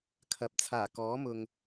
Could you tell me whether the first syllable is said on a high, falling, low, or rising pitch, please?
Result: low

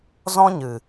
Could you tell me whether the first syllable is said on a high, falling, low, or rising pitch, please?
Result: high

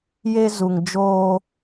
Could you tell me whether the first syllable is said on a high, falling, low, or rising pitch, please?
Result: high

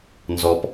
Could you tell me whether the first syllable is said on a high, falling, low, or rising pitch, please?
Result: low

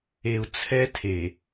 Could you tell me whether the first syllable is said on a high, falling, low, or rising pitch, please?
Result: low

